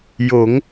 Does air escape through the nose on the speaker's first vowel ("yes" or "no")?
no